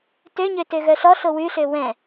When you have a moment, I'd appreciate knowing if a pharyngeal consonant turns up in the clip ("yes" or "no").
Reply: no